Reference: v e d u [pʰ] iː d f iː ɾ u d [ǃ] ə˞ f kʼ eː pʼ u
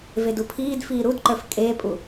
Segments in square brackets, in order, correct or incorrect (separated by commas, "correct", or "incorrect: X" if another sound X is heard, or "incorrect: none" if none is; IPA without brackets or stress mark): correct, correct